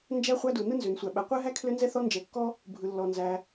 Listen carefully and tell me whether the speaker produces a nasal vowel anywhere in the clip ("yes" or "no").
no